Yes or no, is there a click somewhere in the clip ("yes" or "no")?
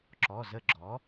yes